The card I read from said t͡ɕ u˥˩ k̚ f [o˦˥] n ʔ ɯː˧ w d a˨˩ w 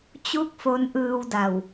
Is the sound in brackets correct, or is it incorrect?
correct